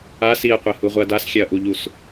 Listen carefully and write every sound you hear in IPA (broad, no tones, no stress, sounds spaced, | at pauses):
a s i ɐ̯ qʷ ɛ h u ʁʷ ɪ ɐ̯ d a s xʲ ɛ ɐ̯ ʔ u ʎ u s